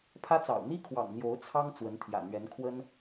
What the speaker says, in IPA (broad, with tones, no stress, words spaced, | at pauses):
pʰä˥t͡sɑ̰˨˩ʊ̯ n̪i˥kʰwɑ̰˨˩ŋ n̪jo˧˥ʊ̯t͡sʰɑ˥ŋ t͡swə˧˥nt̪ʰjä̰˨˩n̪ɥɛ˧˥nkʰwə˥n